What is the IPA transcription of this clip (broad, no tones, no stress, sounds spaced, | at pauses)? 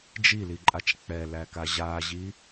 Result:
d͡ʒ i l i ǃʼ a t͡ʃ k͡p ɛ l æ k a ʑ a ʑ i